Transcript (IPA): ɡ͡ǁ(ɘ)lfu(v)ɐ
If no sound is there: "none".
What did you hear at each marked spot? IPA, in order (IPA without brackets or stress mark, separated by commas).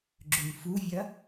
ʉ, vʲ